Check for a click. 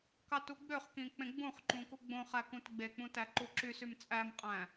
present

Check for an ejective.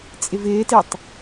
present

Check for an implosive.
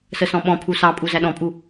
present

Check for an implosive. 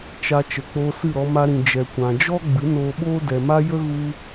present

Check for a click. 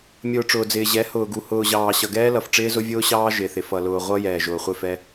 absent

